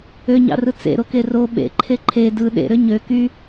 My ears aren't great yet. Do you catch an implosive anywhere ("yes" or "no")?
yes